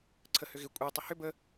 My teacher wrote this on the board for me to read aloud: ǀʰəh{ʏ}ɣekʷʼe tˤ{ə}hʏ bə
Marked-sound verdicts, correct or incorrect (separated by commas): correct, correct